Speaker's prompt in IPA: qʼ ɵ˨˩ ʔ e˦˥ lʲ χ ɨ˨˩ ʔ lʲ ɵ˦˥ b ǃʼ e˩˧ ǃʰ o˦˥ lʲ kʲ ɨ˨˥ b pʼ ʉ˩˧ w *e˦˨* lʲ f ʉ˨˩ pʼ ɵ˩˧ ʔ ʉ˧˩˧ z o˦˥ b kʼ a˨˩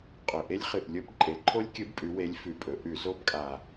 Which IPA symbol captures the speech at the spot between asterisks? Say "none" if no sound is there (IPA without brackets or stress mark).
e˨˥